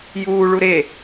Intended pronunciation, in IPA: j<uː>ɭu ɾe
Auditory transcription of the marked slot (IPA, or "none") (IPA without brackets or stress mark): uː